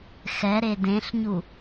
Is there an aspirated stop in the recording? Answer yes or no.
no